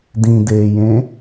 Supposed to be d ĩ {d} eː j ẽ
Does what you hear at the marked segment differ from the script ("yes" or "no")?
no